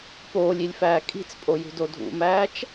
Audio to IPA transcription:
p oː lʲ i lʲ f æː kʼ i̤ t͡s pʼ o j ṳ d o dʱ ṵ m æː t͡ʃ

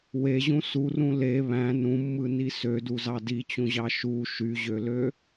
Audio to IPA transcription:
w e ʑ ũ s u r ũ l e β æ̃ n ũ mː ɯ n i s ø d u z ɑ d i t͡ɕ ũ ʑ ɑ ʃ u ʃ y ʑ ø l ø

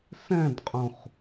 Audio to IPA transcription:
s ɛ̃ d qʼ ũ χ

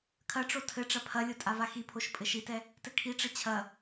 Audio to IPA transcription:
kʰ ɐ ʈ͡ʂ o tʰ ɘ ʈ͡ʂ ɐ pʰ ɐ lʲ o tʼ a v a x i pʰ o ʃ pʼ ɘ ʃ i t ɛ | t ɘ kʰ i ʈ͡ʂ ɘ t͡ɕʰ ɐ

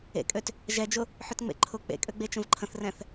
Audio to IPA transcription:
ḛ kʼ ø t | ʒ ɛ d͡ʒ ʊ | ħ ʏ t ŋ͡m ḛ ǃʰ ʊ k͡p ḛ kʼ ø ɡ͡b e t͡ʃ ə̃ v ǃʰ ə̃ θ r ɛ̃ θ

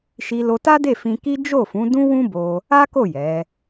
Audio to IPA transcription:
ʃ i˧ l o˧ t a˦ d e˦˨ f ĩ˧ k i˦ d͡ʒ o˦˨ f ũ˨˦ d ũ˦ w ũ˦ b o˧ | a˦ k o˦˨ j ɛ˨˦

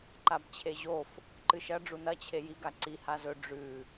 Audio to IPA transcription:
ǃ a b t͡ɕʰ e ʑ o f | ǃ ɨ ʃ ɐ ɖ͡ʐ u n ɐ t͡ɕʰ e j i ɡ a ǀ i h a z ɵ ɖ͡ʐ ʉ

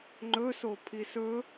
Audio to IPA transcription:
ŋ͡ǃ ɵ s o pʰ i s ɵ

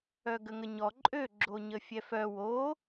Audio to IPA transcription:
œ ɡ ə ŋ ə ɲ ɔ ǃʼ ø ɡ͡ǁ o ɲ ə fʲ ɛ f œ w o

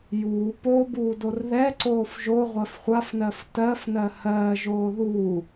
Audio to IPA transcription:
j uː p o b uː d o r ð ɛ ǀ oː f ʒ o ʁʷ ɜ f χʷ a f n ɜ f t ɜ f n ɜ h ɜː ʒ oː ð u

